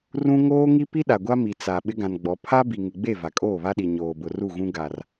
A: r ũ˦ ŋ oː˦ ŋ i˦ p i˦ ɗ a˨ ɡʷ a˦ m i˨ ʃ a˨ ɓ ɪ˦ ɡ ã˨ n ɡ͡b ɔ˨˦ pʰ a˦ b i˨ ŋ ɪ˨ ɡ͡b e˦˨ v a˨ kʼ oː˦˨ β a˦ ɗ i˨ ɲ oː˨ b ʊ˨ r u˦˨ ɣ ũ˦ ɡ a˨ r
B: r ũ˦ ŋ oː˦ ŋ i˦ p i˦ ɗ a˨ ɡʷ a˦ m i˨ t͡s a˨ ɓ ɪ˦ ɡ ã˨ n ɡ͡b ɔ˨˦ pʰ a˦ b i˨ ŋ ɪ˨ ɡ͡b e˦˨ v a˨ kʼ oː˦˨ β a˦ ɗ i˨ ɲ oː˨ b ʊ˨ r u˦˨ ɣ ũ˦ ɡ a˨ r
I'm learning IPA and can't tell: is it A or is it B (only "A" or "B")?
B